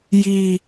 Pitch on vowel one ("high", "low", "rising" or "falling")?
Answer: high